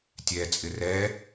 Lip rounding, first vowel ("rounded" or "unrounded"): unrounded